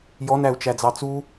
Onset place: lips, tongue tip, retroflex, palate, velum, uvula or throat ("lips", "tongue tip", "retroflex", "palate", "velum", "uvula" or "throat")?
palate